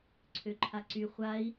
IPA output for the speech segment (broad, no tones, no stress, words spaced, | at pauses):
ǀʰøǃʰaǀy χʷai̯